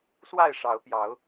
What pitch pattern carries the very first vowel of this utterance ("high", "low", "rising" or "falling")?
falling